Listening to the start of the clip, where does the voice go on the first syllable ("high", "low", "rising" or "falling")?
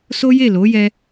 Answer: high